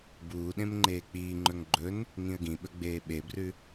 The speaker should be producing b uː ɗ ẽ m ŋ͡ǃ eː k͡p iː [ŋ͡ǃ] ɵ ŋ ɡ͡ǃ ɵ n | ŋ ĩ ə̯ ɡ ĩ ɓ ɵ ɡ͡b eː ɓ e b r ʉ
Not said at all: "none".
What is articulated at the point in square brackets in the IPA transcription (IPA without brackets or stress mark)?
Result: ŋ͡ǃ